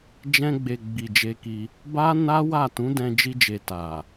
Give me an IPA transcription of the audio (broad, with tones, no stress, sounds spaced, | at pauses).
d͡ʒ ɛ̃˧ ɡ͡b e˨ ɡ͡b i˨ d͡ʒ e˧ k i˧ | b a˦ n a˦ w a˦˨ t ũ˨˦ d ɛ̃˧ d͡ʒ i˧ d͡ʒ e˨ t a˨